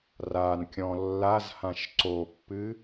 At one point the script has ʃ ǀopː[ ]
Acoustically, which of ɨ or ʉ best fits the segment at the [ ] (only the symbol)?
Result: ɨ